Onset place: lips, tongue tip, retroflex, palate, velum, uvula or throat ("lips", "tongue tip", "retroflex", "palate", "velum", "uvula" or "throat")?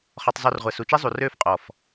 uvula